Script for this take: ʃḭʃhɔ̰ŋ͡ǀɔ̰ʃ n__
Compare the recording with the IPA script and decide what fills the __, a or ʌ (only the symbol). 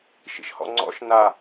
a